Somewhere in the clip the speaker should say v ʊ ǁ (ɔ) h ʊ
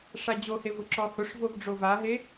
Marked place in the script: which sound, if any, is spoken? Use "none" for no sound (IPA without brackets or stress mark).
ɔ